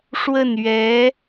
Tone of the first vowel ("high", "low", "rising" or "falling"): falling